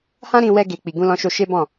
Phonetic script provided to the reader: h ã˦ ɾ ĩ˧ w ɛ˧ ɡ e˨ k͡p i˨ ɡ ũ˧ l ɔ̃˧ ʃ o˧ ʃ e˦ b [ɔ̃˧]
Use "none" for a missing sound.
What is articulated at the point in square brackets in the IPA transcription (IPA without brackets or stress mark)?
ɔ̃˦˨